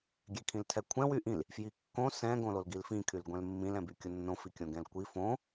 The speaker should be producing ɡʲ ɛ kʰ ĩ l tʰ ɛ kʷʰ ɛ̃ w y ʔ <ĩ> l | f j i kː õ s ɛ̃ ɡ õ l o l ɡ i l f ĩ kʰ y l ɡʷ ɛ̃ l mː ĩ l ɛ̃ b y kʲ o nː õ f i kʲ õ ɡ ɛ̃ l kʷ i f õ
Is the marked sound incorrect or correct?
correct